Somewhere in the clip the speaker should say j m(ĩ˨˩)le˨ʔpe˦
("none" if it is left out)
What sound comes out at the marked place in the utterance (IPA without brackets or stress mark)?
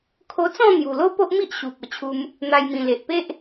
ĩ˨˩